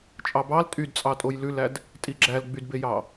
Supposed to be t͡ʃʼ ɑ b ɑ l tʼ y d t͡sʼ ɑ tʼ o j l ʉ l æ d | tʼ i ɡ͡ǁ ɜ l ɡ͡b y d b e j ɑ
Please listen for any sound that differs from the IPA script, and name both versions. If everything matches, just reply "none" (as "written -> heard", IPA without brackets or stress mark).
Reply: ɜ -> æ